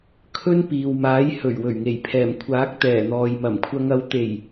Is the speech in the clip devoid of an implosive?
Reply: yes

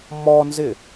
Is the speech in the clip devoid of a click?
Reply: yes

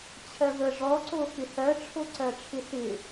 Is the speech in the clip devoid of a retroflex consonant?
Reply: no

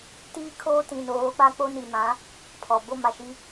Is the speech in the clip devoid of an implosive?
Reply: yes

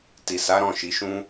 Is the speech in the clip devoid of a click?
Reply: yes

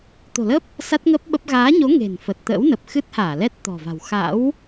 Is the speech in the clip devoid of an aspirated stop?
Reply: yes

